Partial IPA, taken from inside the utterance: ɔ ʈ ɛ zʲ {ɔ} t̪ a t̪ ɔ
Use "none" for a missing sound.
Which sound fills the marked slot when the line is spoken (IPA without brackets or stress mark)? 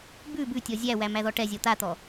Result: ɔ